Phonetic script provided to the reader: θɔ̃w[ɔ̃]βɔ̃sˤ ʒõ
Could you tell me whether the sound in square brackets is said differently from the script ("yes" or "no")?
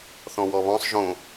yes